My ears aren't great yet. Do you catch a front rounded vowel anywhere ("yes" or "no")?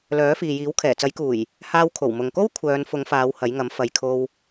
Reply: yes